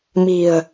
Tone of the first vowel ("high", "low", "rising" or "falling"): low